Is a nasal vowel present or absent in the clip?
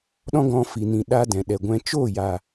present